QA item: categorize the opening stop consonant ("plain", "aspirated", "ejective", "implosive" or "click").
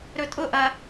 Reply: ejective